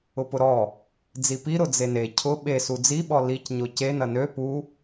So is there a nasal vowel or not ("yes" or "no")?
no